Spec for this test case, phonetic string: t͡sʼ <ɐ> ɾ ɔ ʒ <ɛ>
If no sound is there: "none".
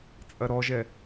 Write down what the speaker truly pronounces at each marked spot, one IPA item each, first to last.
ɐ, ɛ

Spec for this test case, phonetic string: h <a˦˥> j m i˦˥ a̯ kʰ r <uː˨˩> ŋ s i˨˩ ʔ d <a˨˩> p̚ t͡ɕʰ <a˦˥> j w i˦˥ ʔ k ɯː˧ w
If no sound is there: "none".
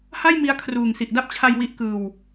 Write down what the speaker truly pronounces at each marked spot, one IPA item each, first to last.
a˥˩, uː˨˩, a˦˥, a˧

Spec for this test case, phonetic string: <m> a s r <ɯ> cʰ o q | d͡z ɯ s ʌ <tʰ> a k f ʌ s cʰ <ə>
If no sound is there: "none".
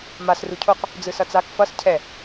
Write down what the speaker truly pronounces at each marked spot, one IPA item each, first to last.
m, u, t͡s, ɛ

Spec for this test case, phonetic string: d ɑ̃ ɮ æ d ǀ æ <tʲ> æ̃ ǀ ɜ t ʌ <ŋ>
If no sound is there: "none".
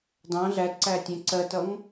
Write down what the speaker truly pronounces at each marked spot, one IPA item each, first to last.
tʲ, ŋ

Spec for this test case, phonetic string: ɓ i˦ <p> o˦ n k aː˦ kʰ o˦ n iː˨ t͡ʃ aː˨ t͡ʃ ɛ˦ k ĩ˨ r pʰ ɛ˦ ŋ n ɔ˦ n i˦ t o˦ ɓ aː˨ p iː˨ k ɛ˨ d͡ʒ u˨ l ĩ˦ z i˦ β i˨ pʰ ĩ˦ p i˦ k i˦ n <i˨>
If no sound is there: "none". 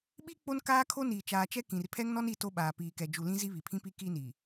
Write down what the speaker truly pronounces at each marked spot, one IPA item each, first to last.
k͡p, i˨

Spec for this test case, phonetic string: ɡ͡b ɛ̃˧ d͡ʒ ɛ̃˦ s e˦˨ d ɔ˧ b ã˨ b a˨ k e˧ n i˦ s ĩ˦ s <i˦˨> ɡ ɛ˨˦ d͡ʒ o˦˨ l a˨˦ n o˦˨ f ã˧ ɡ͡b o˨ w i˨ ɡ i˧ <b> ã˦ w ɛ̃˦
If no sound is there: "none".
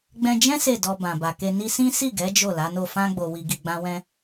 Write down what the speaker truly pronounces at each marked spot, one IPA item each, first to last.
i˦˨, ɡ͡b

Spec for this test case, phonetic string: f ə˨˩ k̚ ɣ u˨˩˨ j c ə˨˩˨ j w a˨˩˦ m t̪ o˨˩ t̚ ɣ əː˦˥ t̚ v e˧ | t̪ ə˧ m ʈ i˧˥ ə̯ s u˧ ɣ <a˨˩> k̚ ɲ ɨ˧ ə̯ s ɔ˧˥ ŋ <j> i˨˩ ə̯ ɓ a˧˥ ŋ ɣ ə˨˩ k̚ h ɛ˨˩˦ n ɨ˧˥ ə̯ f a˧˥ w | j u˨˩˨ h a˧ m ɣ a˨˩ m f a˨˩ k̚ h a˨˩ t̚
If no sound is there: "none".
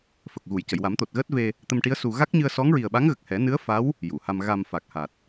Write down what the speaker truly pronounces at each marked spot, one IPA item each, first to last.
a˦˥, ɹ

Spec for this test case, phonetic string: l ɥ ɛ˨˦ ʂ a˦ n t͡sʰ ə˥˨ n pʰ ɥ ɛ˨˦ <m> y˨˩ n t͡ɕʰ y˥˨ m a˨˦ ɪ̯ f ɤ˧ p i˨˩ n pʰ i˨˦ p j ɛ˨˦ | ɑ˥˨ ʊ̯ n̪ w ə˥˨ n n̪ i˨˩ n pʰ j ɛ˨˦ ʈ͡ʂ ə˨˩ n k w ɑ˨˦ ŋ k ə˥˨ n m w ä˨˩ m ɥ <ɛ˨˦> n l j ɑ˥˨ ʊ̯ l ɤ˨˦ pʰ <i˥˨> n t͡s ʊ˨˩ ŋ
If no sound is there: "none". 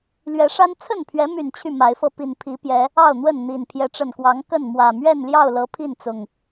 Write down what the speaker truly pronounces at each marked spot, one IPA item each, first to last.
m, ɛ˥˨, i˥˨

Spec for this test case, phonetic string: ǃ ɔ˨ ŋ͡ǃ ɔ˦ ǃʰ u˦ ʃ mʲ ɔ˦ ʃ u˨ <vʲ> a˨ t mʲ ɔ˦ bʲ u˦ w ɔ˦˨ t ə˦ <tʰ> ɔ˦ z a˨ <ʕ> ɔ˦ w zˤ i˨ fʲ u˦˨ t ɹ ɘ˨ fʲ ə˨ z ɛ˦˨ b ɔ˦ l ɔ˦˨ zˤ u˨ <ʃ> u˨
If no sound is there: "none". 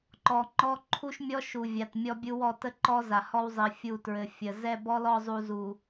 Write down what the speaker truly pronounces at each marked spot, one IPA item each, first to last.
vʲ, ǃ, h, z

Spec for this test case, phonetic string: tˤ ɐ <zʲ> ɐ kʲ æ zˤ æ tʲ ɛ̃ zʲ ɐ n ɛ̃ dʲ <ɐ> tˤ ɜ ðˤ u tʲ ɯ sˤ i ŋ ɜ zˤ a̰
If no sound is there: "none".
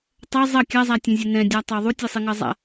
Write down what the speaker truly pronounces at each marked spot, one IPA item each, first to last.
zˤ, a

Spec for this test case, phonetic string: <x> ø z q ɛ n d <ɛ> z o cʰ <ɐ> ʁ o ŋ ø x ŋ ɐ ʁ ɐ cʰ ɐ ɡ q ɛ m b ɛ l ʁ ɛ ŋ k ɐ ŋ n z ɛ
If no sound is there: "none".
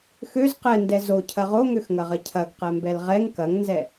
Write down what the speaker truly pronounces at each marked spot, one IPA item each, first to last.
x, ɛ, ɐ

